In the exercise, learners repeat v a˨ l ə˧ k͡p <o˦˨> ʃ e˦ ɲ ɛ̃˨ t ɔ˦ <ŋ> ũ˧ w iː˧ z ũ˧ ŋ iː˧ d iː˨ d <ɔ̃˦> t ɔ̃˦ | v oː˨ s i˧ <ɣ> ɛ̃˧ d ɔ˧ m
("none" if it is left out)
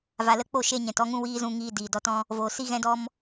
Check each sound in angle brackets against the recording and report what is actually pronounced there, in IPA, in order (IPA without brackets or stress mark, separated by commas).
o˦˨, ŋ, ɔ˦, ɣ